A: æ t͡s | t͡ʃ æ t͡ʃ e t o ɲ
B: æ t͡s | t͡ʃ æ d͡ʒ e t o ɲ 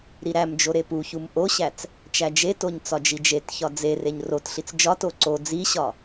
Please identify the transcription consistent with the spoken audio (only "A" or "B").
B